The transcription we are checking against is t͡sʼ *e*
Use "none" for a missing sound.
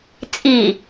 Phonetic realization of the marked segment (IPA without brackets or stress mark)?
i